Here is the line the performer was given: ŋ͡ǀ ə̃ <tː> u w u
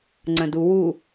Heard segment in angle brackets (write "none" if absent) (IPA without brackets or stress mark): d